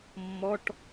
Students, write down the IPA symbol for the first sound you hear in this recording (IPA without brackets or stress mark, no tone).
mː